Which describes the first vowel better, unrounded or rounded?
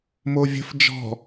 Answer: rounded